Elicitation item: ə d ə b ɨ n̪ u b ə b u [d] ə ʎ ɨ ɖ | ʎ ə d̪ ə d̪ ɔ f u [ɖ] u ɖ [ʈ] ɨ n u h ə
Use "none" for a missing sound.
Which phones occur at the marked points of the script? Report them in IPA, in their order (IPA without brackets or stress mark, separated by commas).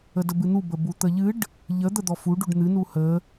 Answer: t̪, ɖ, n̪